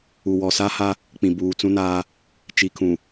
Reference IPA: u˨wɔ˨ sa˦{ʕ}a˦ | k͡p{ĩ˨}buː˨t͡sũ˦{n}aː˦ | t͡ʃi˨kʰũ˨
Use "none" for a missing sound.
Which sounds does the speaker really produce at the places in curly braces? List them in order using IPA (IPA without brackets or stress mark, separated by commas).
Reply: h, ĩ˨, n